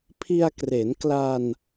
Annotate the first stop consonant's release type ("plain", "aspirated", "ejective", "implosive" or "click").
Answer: aspirated